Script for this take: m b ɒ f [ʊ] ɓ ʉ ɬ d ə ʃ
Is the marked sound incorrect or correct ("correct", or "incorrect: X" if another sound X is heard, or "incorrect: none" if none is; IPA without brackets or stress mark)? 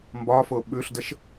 correct